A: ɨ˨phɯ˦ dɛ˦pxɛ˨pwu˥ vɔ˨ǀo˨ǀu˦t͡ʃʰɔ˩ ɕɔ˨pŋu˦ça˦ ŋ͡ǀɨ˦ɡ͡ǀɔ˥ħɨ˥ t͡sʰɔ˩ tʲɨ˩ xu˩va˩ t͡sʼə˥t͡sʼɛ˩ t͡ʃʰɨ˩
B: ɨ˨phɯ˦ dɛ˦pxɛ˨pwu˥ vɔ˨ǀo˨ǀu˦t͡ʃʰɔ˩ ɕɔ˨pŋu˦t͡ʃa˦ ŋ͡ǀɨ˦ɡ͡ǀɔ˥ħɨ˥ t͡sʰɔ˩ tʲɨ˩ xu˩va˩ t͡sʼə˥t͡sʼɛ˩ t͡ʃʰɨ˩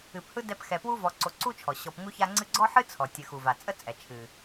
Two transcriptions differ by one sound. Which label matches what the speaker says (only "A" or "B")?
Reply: A